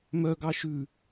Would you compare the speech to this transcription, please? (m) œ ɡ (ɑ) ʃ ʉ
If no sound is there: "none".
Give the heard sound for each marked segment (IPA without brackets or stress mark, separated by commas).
m, ɑ